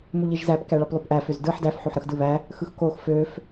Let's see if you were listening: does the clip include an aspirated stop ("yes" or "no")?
no